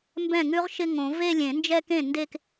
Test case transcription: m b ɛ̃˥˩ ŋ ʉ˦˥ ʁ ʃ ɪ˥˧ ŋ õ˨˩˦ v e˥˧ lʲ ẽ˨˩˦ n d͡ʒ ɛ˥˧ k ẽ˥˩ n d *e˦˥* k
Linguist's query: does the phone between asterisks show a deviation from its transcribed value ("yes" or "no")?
yes